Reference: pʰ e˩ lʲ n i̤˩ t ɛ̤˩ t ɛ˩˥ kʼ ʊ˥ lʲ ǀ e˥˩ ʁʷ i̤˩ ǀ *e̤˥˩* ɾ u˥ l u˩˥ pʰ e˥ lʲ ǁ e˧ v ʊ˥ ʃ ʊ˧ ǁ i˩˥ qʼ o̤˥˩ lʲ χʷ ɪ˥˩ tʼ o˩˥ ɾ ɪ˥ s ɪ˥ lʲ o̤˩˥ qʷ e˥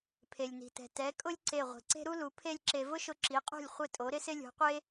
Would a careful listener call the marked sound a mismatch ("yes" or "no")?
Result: yes